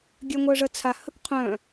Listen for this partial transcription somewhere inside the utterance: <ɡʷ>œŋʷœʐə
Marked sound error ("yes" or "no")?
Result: yes